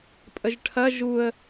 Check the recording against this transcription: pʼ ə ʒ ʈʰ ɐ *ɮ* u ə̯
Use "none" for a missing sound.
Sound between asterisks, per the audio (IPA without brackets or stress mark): ʒ